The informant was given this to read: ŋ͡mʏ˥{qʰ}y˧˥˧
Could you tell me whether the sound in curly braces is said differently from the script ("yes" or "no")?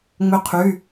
no